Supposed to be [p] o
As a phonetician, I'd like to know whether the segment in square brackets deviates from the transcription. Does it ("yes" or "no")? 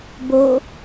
yes